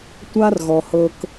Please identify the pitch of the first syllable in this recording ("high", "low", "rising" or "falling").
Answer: high